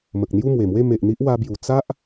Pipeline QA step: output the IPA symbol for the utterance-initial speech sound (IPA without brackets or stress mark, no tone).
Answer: m